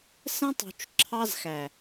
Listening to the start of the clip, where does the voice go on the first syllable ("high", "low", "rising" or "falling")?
high